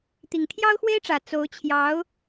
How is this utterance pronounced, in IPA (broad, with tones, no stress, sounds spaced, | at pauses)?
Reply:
t̪ i˨˩ ŋ t̪ʰ j ɑ˥ ʊ̯ x w e˥ ɪ̯ ʈ͡ʂ ä˨˩ t͡s o˧˥ ʊ̯ t͡ɕʰ j ɑ˧˥ ʊ̯